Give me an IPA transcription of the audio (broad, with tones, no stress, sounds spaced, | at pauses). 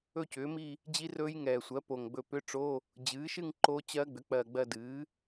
ɵ˥˧ c ʏː˩˥ m i˥˧ | d͡ʑ i˦˥ r ɵː˦˥ j ŋ ɛː˨˩ sʷ ɜ˩˥ p o˨˩ ŋ ɡ͡b ɵ˧ p ʏ˧˥˧ ʈ͡ʂ o˧˥˧ | d͡ʑ ɨː˩˥ ʃ ɨ˥˧ ŋ ǃ o˦˥ t͡ɕ ɜ˦˥ ɡ͡b ʏ˩˥ k͡p ɜ˨˩ ɡ͡b ɜ˧ d ɨː˩˥